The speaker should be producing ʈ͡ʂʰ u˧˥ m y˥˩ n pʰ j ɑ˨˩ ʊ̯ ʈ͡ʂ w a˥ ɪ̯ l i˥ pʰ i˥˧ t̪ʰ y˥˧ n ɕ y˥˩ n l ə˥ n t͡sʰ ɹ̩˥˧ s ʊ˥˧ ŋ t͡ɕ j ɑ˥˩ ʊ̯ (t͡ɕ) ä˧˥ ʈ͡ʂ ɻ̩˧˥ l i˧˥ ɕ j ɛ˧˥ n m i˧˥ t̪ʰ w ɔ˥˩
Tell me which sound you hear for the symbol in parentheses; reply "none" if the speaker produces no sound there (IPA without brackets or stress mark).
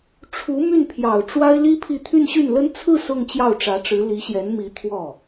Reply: ʈ͡ʂ